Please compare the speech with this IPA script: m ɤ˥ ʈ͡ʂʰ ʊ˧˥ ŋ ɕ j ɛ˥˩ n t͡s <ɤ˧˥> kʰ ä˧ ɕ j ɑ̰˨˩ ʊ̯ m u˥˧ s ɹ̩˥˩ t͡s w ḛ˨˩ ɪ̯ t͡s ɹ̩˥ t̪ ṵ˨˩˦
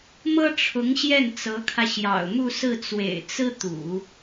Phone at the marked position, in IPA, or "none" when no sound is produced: ɤ˧˥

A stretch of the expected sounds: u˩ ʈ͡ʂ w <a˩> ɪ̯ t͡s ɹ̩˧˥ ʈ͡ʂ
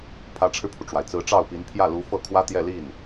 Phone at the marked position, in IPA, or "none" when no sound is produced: a˩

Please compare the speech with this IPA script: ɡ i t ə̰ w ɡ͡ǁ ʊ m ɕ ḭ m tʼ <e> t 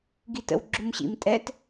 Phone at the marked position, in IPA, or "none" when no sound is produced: ɛ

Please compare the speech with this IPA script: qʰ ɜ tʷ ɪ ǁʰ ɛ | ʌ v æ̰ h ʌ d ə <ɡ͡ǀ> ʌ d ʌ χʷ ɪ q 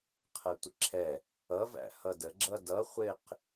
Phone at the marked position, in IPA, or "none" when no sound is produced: ɡ͡ǁ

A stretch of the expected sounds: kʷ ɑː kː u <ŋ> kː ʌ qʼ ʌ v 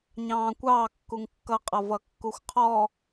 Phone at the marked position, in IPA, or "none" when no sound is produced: ŋ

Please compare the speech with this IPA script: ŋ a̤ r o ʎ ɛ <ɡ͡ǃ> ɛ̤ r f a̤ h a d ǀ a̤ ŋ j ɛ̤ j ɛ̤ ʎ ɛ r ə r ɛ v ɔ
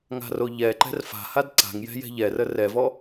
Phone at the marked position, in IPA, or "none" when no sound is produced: ǃ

